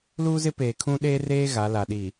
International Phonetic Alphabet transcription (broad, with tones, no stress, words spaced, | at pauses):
luː˦zɪ˦peː˨kʰũ˦ ɗeː˦reː˦ ɣa˨˦la˨ ɗi˨